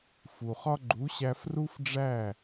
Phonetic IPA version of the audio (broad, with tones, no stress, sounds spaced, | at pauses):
f u˩ χ ɒ˥ ɡ͡ǃ u˩˥ ɕ æ˧ f r u˥ f ɖ͡ʐ æ˥˩